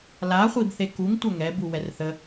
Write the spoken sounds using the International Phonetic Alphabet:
l a χʷ i b θ e k u ŋ tʷ œ ŋ ɛ b u w ɛ r θ ə

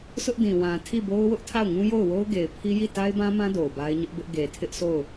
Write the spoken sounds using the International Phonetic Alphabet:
s ʊ˦ ʔ d ĩ˨ w ã˨ tʰ i˦˨ b o˦ ʊ̯ w ʊ˦ ʔ tʰ a˦˨ ʊ̯ ŋ ũ˦ j o˦˨ ʊ̯ w o˦ ʊ̯ ɡ e˨ ɪ̯ pʰ i˦ j i˦˨ t a˦ ɪ̯ b ã˦ m ã˦ d o˨ ʊ̯ b a˦ ɪ̯ ɲ ʊ˦ ʔ b ɪ˦ ʔ ɡ e˨ tʰ ɪ˦ ʔ sʰ o˦˨ ʊ̯

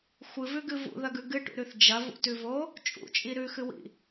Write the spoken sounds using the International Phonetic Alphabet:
xʷ ɨ v ʉ ɡ ɨ v ṵ ð ɐ ɡ ʉ ɡ ɨ ʈ ṵ ɾ ʉ θ d͡ʒ ɐ v ṵ t ʉ v o | t͡ʃʼ ṵ t͡ʃʼ i ɾ ʉ x ɨ w ḭ

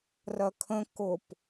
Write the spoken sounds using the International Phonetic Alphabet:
r ɜ kʰ ə̃ k ʊ p

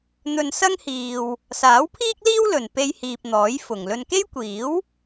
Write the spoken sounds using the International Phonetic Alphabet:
n̪ ɵ˧ n s ɐ˥ ŋ h iː˨ w | s aː˨˥ w pʰ iː˥ k̚ l iː˥ w l ɵ˨ n p e˥ j h iː˧ p̚ n̪ ɔː˨˥ j f ʊ˨ ŋ l ɵ˧ n k e˥ j kʷ iː˨˥ w

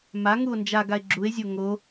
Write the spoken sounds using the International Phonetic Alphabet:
m a ŋ u o̯ n d͡ʒ a ɡ a e̯ ɡ͡ǁ u e̯ zʲ o ŋ o

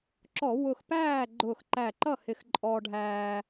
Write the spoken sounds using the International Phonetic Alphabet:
ǁ ɔ˧˩˧ w ʊ˧˩ x p æː˥˨ ɡ͡ǃ ʊː˧˩ x ǃ æ˧˩ ǃ ʌ˥˨ h ɪ˧˩ x ǃʼ ɔː˧ ɖʱ æː˧

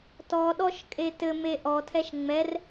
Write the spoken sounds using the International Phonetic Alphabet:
t ɔ ɗ ɔ ʃ kʼ e t ɘ m e ʔ ɔ tʰ ɛ ʃ ŋ͡m ɛ r

